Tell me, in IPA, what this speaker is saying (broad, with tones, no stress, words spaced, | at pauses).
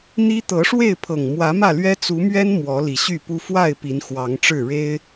n̪i˦ t̪ɤ˨˦ʂwe˥˨ɪ̯pʰɤ˨˩ŋ mwä˨˦mä˥˨lɥɛ˦ t͡su˨˦mɥɛ˦n mwɔ˨˦li˨˩ɕy˥˨pu˦ fwa˥˨ɪ̯ pi˨˦nxwɑ˨˦ŋʈ͡ʂɻ̩˥˨ ɻe˦ɪ̯